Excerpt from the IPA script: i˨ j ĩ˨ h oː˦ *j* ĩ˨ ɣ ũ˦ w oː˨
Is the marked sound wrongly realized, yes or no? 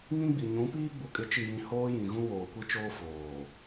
no